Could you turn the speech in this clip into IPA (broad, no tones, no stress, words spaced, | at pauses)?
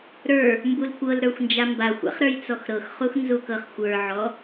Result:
ɾə˞ | mbulkʷɤlɾə˞xʷ nd͡ʒambaxʷa̰χ ɾə˞jt͡sɔxɾɤxχux nzukɤχxʷə˞ʕɔ